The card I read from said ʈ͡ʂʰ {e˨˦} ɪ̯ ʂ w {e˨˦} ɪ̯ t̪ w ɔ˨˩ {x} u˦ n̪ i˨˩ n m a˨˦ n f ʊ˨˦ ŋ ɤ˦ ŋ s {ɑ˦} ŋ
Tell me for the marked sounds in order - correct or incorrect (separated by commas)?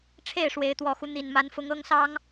incorrect, correct, correct, correct